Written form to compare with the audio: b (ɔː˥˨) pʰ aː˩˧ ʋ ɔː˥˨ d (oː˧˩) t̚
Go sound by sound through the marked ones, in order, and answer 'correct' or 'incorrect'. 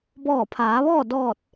incorrect: ɔː˧˩, incorrect: ɔː˧˩

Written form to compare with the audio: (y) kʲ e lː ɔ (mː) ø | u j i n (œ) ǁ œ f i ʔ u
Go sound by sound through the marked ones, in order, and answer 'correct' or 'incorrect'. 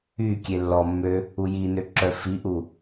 correct, correct, incorrect: ø

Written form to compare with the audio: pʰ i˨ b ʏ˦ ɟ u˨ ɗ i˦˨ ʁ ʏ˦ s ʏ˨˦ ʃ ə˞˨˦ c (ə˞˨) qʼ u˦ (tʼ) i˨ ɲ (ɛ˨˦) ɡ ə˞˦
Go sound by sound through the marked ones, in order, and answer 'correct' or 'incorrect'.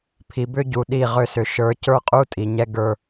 incorrect: ə˞˦˨, correct, incorrect: ɛ˦

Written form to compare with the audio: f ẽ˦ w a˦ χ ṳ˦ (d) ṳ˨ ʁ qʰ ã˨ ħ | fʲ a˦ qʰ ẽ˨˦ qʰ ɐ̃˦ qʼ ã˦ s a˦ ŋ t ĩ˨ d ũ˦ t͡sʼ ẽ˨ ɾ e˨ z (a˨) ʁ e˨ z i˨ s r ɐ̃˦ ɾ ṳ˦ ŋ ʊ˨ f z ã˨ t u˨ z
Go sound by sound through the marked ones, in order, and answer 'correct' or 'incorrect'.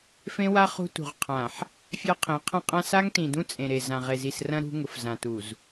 incorrect: t, incorrect: ã˨

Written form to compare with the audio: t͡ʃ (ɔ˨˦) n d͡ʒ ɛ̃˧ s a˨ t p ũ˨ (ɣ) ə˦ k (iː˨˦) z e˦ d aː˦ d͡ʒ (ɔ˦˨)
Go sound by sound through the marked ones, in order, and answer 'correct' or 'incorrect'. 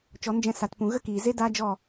correct, correct, incorrect: iː˨, correct

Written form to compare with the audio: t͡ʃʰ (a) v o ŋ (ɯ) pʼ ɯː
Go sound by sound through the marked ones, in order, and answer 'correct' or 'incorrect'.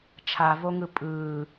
correct, correct

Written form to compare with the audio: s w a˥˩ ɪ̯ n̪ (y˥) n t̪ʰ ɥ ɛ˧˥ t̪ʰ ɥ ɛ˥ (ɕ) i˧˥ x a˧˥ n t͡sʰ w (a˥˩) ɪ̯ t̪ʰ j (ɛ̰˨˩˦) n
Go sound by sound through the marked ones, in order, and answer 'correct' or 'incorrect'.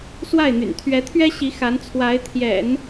incorrect: y̰˨˩, correct, incorrect: a˧˥, correct

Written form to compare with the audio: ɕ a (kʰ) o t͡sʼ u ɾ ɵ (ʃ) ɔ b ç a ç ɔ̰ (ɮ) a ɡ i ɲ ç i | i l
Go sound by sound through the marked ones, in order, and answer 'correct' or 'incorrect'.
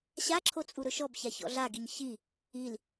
incorrect: ǁʰ, correct, correct

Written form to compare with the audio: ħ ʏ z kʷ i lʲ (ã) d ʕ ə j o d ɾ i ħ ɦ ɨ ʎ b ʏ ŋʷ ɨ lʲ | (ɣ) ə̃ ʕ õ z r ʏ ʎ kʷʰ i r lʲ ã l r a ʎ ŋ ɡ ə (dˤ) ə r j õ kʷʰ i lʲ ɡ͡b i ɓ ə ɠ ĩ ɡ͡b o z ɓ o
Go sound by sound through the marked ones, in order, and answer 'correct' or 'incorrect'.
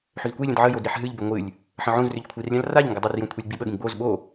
incorrect: ə̃, incorrect: ħ, correct

